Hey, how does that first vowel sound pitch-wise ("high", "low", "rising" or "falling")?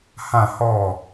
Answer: falling